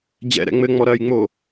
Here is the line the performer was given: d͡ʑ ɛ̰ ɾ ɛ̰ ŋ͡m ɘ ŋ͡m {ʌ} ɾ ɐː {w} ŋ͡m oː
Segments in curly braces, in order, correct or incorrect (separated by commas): incorrect, incorrect